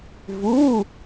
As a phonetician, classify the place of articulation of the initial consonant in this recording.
labial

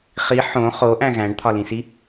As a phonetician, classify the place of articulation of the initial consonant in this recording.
uvular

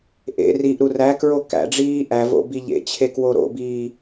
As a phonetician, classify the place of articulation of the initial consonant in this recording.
glottal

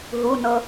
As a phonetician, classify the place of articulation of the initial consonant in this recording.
glottal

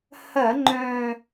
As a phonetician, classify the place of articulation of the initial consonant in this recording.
glottal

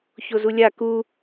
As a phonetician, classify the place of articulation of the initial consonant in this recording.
palatal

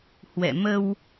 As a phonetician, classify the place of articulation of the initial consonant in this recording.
glottal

